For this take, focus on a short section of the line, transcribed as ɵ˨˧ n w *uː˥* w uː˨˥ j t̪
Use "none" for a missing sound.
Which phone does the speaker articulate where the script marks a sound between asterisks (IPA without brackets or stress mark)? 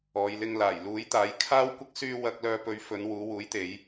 uː˨˧